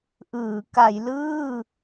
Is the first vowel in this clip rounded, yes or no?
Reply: no